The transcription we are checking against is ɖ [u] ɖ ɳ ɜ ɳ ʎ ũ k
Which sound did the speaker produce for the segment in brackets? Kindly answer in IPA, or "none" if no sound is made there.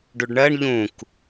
u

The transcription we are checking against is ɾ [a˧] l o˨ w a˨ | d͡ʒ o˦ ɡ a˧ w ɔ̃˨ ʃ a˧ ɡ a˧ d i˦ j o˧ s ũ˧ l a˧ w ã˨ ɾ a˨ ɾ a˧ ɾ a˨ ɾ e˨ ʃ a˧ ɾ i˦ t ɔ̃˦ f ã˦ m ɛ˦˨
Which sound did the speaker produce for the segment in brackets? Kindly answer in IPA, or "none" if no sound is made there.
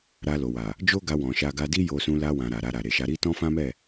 a˧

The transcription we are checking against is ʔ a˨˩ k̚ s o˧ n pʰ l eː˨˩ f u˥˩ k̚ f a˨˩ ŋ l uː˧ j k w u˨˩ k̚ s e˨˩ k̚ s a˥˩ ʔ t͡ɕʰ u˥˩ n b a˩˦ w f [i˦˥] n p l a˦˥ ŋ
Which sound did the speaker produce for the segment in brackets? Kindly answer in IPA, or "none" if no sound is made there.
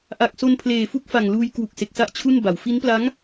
i˦˥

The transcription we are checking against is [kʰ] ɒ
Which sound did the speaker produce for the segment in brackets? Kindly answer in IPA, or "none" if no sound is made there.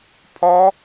pʰ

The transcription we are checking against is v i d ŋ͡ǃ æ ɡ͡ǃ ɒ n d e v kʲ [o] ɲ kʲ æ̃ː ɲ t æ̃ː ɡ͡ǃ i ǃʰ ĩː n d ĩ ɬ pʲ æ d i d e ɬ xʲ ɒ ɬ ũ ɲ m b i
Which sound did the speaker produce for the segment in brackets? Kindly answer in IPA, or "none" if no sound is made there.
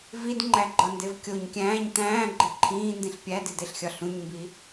o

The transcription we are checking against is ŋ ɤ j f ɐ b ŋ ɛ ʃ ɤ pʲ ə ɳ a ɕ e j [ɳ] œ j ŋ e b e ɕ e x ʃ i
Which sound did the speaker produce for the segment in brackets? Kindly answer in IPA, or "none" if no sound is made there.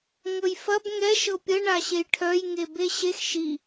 ʈʰ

